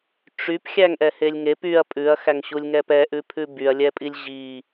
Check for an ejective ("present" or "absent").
present